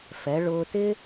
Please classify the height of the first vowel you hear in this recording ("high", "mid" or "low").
mid